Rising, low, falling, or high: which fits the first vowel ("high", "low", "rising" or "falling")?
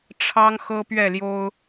high